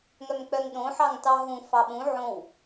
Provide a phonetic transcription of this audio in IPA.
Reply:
ŋ œ m k͡p œ ŋ ɗ õ ħ ɑ ŋ t ɑ ɦ ũ f ɑ ɓ ũ ʕ õ w

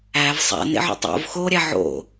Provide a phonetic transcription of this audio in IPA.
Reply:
æ v sˤ æ̰ n ḛ ʕ o̰ tˤ o̰ v x o ɾʲ æ ʕ o̰

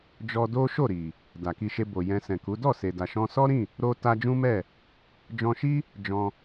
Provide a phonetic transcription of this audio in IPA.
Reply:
d͡ʒ ɔ˧ d o˦ ʃ o˦˨ ɾ i˨ | d a˨ k i˧ ʃ e˧ b o˨ j ɛ̃˧ s ɛ̃˨ k u˨˦ d ɔ˦˨ s e˨ d a˨ ʃ ɔ̃˧ s ɔ˦ ɾ ĩ˦˨ | ɾ o˧ t a˧ d͡ʒ ũ˦ m ɛ˦˨ | d͡ʒ ɔ̃˧ ʃ i˦ | d͡ʒ ɔ̃˧

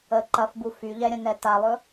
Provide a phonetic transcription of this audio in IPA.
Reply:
ə ǃ ɐ f b u f y ʎ ɛ ɾʲ ɐ̃ n ɛ t a lˠ ɵ

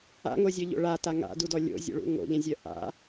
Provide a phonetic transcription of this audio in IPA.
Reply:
a̰ ŋ o zʲ œ ʎ o̰ ɭ a t a ŋ a̰ d u d ɔ lʲ o̰ zʲ o̰ ɭ ṵ ŋ o̰ ʎ ɛ̃ zʲ œ ʔ a̰

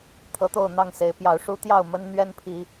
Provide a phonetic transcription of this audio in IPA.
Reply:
t̪ʰ ɤ˨˦ t̪ o˥˨ ʊ̯ n̪ ɑ˥˨ ŋ s e˨˦ ɪ̯ p j ɑ˨˩ ʊ̯ ʂ u˦ t̪ j ɑ˥˨ ʊ̯ m ə˦ n n̪ ɥ ɛ˦ n pʰ i˨˦

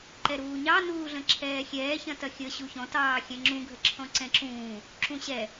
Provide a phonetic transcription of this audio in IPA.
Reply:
ǃ ɛ ɾ uː ɲ ɑ n uː ɮ ə̃ ǁʰ ɛː xʲ ɛː ç ɐ̃ t ɐ xʲ ə ɕ u ç ɔ̃ t ɑː xʲ ɛ̃ ŋ͡ǁ ũ ɡʱ ə ǁʰ ɔ̃ ǀ ɛ̃ ǁ ũː | ǁ ũ ɕ ɛ

